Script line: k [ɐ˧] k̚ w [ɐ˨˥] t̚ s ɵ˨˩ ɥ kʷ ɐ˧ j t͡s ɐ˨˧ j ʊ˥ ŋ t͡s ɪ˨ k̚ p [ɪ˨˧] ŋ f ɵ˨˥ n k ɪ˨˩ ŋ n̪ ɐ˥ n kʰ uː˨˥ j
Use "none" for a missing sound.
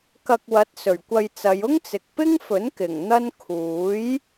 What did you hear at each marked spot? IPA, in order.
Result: ɐ˧, ɐ˨˥, ɪ˥

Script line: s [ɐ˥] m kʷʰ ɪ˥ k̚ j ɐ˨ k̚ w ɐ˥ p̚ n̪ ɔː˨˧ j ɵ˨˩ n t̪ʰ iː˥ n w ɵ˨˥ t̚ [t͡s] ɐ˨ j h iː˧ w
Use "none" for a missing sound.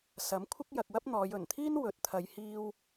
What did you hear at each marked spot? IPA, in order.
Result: ɐ˨˥, t̪ʰ

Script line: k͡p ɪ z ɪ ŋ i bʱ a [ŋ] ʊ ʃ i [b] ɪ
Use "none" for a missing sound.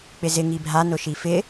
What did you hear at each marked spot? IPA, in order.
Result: n, f

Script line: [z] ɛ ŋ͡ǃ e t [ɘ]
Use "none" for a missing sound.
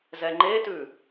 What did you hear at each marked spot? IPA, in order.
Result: z, ʉ

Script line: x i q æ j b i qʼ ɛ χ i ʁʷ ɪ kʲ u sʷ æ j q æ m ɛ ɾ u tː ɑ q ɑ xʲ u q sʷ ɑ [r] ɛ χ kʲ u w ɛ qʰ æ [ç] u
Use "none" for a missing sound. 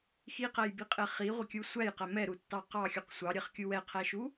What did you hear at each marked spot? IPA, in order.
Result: ɾʲ, ʃ

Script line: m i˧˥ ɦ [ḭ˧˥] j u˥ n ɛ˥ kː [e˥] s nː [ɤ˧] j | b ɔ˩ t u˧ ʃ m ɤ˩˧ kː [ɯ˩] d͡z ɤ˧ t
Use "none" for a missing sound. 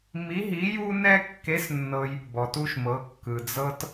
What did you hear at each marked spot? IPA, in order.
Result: i˧˥, e˧˥, ɤ˧, ɯ˩

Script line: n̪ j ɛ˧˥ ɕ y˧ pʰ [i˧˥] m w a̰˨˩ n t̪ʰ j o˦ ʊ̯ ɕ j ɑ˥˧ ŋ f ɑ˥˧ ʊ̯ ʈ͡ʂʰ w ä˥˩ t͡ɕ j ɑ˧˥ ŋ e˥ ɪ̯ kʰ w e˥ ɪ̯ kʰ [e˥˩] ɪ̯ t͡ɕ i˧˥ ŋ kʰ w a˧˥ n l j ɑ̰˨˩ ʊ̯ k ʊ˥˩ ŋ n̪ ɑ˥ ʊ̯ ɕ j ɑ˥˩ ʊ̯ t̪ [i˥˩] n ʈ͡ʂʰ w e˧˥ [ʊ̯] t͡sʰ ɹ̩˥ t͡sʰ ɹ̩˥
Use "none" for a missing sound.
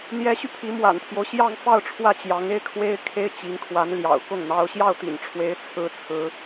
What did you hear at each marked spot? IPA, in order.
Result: i˧˥, e˥, ḭ˨˩, ɪ̯

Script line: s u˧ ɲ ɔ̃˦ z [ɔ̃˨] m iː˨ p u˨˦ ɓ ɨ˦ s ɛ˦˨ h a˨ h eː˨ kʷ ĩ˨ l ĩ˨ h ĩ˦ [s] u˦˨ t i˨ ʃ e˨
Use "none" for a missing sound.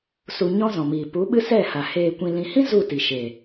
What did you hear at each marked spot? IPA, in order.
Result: ɔ̃˨, z

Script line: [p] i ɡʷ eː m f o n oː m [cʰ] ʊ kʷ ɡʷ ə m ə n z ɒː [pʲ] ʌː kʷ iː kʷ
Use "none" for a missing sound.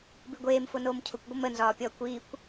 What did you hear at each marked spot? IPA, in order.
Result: b, cʰ, pʲ

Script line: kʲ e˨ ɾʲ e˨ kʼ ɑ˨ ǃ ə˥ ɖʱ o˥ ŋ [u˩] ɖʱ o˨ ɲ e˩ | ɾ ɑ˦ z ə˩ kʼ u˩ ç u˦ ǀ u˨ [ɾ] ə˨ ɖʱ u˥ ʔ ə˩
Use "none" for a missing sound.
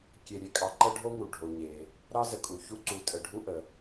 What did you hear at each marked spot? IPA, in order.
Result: u˩, tʼ

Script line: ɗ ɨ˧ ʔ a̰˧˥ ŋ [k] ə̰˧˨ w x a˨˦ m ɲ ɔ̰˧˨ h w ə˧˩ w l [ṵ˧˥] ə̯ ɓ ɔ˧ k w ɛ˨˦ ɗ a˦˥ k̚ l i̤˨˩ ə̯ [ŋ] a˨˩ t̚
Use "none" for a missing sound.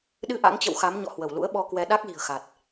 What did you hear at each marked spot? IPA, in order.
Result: t͡ɕ, ṵ˧˥, x

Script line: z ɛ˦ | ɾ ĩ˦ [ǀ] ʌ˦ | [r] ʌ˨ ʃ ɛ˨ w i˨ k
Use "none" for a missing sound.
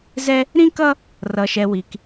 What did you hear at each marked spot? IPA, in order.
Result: k, r

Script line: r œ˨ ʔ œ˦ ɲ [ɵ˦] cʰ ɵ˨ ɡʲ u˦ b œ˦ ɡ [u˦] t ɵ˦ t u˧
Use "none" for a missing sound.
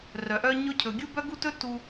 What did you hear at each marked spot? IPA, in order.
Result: ɵ˦, u˦

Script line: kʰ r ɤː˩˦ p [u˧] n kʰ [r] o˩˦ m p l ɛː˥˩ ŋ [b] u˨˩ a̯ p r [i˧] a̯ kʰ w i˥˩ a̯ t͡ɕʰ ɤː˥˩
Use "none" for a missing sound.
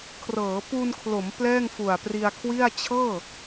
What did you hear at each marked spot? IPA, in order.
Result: u˧, l, f, i˧

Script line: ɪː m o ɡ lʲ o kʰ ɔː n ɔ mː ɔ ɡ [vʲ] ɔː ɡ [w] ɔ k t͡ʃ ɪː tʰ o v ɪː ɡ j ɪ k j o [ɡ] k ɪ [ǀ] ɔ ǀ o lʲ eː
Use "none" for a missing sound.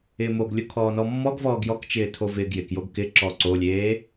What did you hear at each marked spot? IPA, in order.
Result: v, j, ɡ, ǁ

